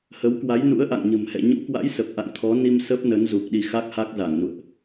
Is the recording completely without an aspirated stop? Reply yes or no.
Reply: no